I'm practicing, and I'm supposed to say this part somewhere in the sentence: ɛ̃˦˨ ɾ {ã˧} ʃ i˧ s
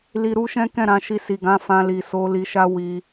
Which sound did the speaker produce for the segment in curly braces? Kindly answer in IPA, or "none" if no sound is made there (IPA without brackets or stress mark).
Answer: ã˧